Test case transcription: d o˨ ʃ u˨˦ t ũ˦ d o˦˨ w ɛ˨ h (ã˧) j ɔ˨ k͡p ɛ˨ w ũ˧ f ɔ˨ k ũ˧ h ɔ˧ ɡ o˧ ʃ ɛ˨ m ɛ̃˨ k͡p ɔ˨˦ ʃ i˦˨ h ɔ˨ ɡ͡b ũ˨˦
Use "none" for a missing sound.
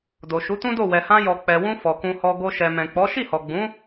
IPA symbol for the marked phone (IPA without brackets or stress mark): ã˧